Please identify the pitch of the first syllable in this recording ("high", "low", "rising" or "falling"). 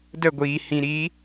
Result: falling